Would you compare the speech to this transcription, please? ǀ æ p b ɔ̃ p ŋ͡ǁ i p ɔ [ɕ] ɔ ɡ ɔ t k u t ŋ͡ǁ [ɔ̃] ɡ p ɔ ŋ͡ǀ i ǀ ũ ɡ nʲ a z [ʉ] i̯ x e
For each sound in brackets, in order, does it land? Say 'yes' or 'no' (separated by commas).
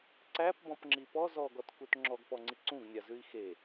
no, no, yes